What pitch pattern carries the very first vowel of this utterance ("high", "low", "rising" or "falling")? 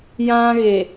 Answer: high